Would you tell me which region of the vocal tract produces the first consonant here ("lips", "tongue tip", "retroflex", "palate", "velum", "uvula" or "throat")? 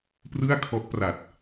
lips